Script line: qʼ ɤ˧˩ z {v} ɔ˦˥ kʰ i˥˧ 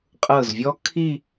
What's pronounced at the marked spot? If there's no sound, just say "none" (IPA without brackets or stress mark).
vʲ